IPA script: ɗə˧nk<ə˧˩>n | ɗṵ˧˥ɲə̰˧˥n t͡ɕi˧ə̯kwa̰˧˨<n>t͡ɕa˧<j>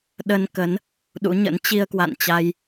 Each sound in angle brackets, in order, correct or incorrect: incorrect, correct, correct

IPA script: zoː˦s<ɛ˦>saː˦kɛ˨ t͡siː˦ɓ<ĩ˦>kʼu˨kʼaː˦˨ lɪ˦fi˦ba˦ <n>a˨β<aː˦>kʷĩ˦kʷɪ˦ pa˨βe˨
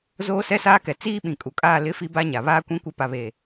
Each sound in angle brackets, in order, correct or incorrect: correct, incorrect, incorrect, correct

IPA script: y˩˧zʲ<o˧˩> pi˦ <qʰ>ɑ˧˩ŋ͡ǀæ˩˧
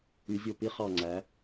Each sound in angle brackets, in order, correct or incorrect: correct, incorrect

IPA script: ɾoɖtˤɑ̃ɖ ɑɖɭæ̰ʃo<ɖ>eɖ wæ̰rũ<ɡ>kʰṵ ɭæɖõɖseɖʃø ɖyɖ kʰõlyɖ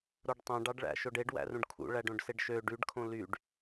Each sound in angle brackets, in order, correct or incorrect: correct, incorrect

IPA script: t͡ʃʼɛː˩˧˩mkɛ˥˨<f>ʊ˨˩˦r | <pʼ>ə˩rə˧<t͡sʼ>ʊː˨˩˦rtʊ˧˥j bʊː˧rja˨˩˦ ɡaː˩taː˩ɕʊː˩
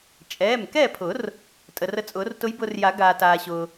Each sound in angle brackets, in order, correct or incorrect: incorrect, incorrect, correct

